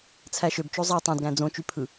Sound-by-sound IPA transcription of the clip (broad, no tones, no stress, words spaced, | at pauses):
t͡sʰæʃøb t͡ʃozˤæ tˤæ̃dɡæ̃ d͡zõt͡ʃypʰɯ